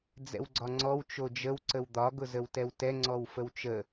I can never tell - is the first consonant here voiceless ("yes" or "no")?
no